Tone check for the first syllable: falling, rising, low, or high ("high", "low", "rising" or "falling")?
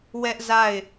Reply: high